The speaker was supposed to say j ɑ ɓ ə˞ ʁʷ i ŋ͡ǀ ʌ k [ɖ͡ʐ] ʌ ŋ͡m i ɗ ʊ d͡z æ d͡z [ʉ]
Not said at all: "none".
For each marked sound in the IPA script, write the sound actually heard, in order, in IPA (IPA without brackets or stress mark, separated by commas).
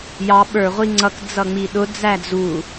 d͡z, u